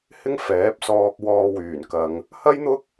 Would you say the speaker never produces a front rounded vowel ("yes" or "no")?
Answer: no